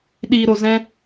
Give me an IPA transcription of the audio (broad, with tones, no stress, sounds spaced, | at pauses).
ɗ iː˧ ɾ o˧ z ɛ̃˦